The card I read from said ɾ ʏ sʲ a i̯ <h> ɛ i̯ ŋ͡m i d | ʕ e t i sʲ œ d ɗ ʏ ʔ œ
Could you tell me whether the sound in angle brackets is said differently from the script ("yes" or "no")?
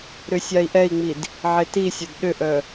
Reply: yes